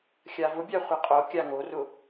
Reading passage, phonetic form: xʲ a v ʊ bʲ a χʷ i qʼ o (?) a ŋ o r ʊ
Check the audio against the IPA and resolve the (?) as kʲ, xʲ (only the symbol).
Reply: kʲ